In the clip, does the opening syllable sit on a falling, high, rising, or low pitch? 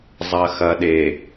low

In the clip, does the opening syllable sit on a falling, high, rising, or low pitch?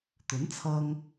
rising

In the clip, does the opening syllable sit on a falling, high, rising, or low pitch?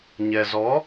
low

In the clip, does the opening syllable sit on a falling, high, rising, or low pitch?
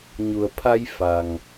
low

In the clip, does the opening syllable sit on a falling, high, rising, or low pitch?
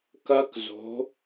rising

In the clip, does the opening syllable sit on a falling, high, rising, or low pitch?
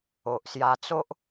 low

